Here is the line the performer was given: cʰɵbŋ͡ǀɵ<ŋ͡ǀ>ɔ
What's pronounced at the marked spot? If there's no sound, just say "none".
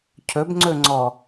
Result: ŋ͡ǀ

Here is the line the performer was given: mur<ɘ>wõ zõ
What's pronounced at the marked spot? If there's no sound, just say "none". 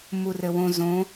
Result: ɘ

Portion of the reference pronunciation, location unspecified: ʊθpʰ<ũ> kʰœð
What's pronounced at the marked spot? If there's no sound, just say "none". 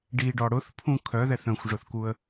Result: ũ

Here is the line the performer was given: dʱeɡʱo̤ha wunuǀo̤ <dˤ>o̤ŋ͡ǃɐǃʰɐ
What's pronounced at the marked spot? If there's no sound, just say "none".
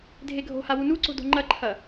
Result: d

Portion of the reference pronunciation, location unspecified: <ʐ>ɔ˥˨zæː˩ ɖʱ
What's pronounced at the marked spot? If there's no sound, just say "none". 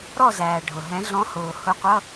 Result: ɾ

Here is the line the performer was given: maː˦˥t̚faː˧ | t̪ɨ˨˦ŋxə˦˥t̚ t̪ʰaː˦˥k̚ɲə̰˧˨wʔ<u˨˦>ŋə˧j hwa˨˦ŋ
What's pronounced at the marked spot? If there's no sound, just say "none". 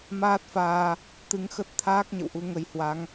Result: u˧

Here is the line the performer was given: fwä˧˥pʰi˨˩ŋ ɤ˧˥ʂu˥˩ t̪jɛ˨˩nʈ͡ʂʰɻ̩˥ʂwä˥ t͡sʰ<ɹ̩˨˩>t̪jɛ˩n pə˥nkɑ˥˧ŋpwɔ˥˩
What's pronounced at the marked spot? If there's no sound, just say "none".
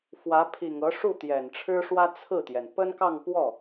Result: ɹ̩˥˩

